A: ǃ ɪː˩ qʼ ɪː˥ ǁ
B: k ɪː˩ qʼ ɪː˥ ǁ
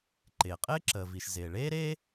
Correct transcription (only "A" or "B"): A